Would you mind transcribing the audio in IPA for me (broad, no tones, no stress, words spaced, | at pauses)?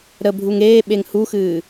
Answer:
ɾə bʱuŋeːɓeŋ huxɨː